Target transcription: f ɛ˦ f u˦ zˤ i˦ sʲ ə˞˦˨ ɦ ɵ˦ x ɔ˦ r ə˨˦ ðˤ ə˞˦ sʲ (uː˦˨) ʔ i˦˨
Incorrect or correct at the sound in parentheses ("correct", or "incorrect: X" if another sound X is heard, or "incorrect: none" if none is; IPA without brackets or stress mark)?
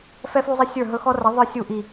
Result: incorrect: u˦˨